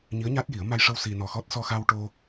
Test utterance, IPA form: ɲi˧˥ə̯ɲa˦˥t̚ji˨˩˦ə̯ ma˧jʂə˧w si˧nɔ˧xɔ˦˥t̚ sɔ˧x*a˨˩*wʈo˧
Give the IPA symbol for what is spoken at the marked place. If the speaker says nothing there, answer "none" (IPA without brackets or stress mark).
a˧